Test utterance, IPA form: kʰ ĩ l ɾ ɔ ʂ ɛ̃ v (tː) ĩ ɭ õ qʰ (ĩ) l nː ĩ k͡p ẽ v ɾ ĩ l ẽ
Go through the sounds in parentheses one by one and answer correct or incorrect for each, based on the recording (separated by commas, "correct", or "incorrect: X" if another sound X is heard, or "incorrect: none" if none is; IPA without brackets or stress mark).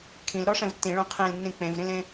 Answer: correct, incorrect: ẽ